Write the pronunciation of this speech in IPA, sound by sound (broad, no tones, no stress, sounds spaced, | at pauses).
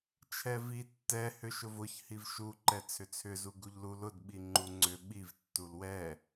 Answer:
t͡ʃʰ ɛ v i tː ɛ h ʏ ʃ ʊ v ʊ ç h i v ʃ u ǃ ɛ t͡sʰ ʏ t͡sʰ ʏ z u ɡ u ʎ l u l ʊ d ɓ i ŋ͡ǃ u ŋ͡ǀ ʏ ɓ i v tː u l w ɛ